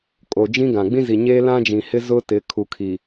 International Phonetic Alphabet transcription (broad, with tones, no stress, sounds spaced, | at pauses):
kʼ o˨ d͡ʒ ĩ˦ ɡ ã˨ ɡ͡b ĩ˦ z i˨ ɲ eː˦ l ã˦ d͡ʒ ĩ˨ h ɪ˦ z ʊ˦ t ɪ˨˦ kʰ u˨ kʰ iː˨